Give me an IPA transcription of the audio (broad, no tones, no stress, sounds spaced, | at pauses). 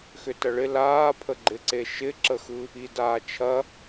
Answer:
x ʏ t ɐ ɭ ɪ l aː pʰ ə ɡ͡ǃ ɪ ǀ e ʃ ɪ ǁ ə x ɯ | i d aː t͡ʃʰ ɐ